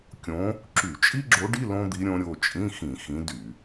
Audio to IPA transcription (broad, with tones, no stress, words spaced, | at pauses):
kʲõ˧˥ | ǁy˧˩˧t͡ʃʼi˥ɡ͡ǁo˧˥ɖi˧˥˧ lõ˥d̪i˧˥ ɾʲõ˧˥ɾʲo˩˧˩ t͡ʃʼĩ˧˥˧xĩ˧˩˧ xĩ˧˥dy˧˩˧